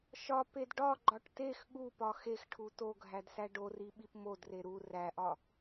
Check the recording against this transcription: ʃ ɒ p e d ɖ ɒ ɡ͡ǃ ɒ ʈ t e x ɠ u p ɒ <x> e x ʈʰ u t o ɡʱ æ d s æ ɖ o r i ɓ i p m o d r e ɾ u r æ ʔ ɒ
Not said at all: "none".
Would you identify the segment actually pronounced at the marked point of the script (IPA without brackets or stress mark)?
x